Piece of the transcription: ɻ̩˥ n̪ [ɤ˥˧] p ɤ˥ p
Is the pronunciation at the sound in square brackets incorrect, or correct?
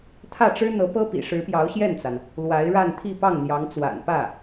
incorrect: ɤ˧˥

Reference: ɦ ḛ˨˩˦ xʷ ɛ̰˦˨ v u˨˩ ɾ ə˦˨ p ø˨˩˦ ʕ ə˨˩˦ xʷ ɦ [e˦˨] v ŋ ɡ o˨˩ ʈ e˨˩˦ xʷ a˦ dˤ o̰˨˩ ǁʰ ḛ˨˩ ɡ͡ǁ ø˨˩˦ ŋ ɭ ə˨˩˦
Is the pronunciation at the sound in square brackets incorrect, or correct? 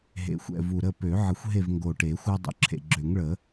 correct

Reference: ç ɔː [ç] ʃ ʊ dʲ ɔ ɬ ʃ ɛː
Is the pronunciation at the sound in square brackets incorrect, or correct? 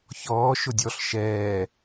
incorrect: none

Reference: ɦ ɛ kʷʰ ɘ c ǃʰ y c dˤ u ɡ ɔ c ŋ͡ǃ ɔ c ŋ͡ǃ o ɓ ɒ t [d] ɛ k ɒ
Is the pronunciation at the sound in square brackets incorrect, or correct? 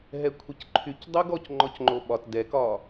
correct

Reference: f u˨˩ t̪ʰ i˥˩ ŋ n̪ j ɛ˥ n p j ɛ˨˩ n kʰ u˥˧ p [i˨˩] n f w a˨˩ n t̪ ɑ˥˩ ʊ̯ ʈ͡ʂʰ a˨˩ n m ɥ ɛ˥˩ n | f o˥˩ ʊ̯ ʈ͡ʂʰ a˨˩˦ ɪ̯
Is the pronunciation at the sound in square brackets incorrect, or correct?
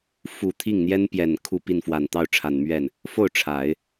incorrect: i˥˩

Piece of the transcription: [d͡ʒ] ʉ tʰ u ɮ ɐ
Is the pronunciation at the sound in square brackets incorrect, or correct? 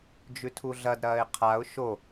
correct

